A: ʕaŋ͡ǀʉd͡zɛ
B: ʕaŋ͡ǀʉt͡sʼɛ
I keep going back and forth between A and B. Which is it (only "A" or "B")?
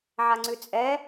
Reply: B